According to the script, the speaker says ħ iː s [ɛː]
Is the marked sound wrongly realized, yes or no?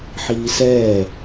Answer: no